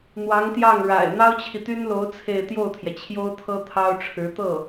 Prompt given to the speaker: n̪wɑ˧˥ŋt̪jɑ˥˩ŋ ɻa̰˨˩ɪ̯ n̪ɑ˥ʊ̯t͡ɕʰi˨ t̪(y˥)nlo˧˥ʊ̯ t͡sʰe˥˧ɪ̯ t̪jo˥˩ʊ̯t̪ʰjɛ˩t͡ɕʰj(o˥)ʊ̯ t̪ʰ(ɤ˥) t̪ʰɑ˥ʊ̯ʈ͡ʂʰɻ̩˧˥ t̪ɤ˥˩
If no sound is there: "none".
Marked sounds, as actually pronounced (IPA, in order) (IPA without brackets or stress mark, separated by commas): y˥, o˥, ɤ˥